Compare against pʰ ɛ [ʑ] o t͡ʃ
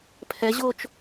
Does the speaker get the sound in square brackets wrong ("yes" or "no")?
no